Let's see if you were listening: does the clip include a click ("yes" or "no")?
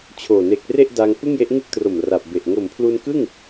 no